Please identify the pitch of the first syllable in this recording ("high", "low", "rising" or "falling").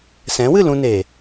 rising